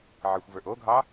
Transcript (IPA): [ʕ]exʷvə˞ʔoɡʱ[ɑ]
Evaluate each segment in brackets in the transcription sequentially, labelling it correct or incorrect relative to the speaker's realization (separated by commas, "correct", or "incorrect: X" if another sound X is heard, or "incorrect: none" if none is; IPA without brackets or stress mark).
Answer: correct, correct